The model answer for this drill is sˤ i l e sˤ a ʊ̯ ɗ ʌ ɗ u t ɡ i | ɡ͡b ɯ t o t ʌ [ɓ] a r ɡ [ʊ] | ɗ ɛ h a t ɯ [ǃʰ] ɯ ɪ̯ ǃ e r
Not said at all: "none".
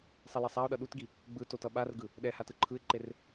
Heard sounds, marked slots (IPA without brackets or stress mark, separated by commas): ɓ, ɯ, ǃʰ